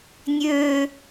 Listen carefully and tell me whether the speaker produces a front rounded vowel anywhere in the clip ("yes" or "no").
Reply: yes